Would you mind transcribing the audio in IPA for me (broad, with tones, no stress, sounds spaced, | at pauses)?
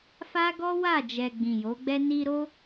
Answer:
f a˦ ɡ ɔ˦ w a˦˨ d͡ʒ ɛ˨ ɡ͡b ĩ˨ j o˨˦ ɡ͡b ɛ˦ n i˧ ɾ o˦